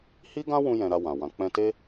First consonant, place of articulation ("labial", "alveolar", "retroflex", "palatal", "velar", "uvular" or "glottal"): glottal